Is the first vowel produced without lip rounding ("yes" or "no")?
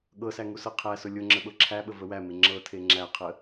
yes